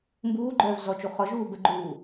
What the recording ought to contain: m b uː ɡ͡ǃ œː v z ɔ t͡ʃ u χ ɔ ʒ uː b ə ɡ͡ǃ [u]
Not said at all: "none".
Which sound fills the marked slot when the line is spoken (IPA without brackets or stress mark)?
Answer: uː